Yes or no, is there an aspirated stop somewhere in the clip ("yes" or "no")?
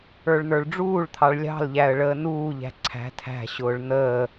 yes